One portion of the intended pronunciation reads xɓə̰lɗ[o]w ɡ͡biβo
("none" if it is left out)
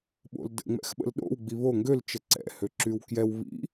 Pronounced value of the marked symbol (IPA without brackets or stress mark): o̰